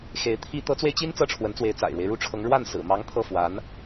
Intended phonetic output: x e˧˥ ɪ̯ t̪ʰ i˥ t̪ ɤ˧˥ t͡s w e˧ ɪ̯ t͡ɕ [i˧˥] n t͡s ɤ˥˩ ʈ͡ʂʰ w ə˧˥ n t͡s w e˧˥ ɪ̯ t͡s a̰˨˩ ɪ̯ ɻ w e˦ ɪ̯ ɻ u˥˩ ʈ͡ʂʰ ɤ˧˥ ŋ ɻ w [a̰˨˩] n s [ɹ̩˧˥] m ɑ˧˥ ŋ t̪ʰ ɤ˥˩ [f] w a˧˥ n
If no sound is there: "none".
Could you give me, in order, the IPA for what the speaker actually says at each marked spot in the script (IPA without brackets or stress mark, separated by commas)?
i˥, a˥˩, ɹ̩˨˩, f